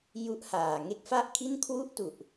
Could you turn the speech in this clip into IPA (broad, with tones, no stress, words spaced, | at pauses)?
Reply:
ju˦˥ʔhaː˨˩ ŋe˥˩k̚fa˥˩ʔkʰi˥˩n kʰwu˥˩ʔtu˨˩ʔ